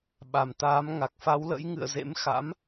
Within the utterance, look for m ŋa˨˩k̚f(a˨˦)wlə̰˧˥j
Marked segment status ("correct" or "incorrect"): correct